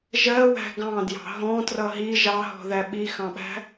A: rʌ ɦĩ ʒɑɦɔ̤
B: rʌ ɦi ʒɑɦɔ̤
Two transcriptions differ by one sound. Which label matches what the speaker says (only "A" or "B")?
B